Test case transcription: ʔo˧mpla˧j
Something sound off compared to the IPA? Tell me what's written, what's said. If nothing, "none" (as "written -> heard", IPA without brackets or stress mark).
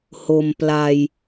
ʔ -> h